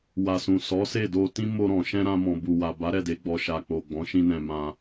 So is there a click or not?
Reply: no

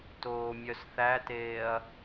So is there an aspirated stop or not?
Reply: no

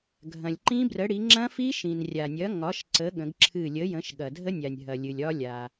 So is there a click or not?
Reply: yes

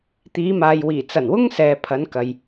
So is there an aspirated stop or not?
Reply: yes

